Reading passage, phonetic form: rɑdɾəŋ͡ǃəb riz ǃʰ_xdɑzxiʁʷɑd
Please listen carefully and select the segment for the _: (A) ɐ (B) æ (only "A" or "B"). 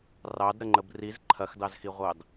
A